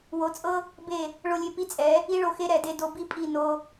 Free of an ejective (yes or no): no